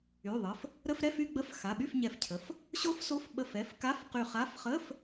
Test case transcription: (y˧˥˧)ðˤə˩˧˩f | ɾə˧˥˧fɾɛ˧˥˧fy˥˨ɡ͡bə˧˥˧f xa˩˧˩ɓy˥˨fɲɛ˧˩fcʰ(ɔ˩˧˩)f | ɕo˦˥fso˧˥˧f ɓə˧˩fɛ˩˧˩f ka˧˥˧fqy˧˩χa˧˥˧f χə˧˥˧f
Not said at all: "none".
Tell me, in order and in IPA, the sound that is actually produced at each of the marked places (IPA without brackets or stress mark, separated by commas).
y˩˧˩, ə˩˧˩